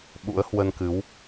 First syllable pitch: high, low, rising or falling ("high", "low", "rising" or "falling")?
rising